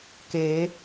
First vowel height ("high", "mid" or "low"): mid